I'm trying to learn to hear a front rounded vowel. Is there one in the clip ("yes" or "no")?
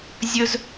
no